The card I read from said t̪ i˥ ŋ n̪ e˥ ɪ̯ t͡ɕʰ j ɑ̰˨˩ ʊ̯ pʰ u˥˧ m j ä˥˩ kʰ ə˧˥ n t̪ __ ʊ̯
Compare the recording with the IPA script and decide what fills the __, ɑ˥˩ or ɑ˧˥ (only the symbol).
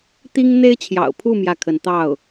ɑ˥˩